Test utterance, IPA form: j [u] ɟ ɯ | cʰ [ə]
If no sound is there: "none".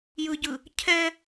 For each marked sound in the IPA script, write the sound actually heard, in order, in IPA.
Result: ɯ, ɛ

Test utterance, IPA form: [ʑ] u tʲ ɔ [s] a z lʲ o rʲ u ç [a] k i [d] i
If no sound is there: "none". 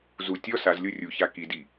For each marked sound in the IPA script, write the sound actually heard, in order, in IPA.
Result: z, s, a, d

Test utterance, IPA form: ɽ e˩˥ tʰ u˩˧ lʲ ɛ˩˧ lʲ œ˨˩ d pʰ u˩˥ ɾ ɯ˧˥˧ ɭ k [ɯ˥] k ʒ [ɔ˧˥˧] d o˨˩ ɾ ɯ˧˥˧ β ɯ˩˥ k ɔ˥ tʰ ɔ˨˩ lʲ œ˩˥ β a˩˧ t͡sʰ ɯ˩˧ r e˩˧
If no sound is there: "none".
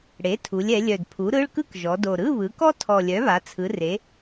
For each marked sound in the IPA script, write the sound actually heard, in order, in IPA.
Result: ɯ˥, ɔ˩˧

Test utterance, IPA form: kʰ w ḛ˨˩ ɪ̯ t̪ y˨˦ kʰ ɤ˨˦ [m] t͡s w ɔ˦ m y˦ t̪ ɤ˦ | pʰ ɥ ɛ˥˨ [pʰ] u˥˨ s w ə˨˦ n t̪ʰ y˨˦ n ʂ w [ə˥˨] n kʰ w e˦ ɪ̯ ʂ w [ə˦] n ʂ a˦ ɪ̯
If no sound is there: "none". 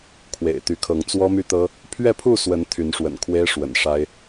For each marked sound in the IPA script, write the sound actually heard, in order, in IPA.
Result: ŋ, pʰ, ə̰˨˩, ə̰˨˩

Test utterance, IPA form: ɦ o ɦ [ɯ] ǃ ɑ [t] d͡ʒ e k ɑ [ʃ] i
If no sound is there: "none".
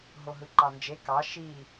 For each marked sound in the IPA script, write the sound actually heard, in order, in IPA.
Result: ɯ, n, ʃ

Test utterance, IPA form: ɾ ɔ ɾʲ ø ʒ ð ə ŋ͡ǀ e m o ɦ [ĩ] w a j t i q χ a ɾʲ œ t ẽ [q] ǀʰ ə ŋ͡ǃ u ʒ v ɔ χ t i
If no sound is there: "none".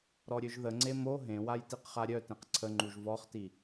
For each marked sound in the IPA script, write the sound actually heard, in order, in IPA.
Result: ẽ, q

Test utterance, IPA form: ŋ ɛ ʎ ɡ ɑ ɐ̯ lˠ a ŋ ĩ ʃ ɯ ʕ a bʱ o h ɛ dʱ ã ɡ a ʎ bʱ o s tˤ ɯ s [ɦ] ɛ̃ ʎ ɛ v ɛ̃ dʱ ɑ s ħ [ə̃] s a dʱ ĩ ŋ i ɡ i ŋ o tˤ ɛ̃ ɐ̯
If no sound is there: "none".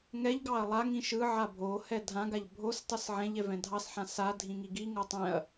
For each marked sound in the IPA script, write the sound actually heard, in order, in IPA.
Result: ʕ, ã

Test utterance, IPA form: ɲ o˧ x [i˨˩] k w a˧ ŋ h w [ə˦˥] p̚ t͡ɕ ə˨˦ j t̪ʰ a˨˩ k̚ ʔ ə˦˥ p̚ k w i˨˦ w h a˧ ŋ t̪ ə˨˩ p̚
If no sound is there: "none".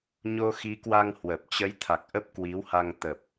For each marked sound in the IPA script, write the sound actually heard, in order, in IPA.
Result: i˨˦, ə˨˩

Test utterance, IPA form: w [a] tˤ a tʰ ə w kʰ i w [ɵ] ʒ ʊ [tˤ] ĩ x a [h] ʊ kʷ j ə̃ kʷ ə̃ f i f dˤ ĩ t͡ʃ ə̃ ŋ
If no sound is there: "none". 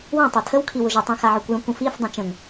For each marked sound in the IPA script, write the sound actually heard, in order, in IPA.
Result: ã, ʊ, tˤ, ʕ

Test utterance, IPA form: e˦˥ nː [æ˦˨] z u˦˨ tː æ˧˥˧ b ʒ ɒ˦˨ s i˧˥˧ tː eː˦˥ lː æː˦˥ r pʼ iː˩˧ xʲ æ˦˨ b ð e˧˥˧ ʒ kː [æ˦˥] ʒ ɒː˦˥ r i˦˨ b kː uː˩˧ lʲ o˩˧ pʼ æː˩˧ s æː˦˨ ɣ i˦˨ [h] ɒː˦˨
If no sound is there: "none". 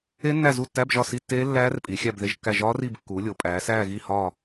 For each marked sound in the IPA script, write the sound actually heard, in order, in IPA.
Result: æ˦˨, æ˦˨, h

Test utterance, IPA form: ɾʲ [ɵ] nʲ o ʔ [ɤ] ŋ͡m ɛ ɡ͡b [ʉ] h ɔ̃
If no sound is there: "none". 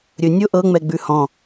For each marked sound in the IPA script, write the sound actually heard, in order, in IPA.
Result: ɵ, ɤ, ʉ

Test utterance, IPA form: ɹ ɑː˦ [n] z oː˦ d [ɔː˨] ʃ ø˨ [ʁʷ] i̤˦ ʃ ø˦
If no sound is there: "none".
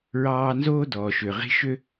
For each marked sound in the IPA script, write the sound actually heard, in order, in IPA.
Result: n, ɔː˨, ʁ

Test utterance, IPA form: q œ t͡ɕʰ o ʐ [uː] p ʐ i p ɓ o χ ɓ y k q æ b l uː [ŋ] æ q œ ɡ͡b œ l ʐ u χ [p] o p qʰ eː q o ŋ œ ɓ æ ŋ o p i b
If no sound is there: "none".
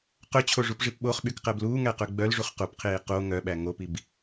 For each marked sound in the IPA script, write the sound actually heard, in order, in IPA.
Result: u, ŋ, q

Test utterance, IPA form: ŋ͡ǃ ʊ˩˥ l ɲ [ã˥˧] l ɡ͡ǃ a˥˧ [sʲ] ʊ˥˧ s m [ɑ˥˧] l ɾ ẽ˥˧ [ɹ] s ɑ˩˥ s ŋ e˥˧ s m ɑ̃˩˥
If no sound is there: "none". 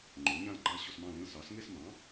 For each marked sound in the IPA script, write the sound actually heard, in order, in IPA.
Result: ã˥˧, ɕ, ɑ̃˥˧, l

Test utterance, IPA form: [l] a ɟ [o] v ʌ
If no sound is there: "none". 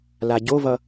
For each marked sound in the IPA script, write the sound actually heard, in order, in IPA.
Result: l, o

